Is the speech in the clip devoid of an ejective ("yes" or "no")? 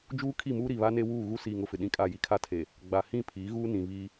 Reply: no